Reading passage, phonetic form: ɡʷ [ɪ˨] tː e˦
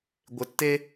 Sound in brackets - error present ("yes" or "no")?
no